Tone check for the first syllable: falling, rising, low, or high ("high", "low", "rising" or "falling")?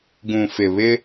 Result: low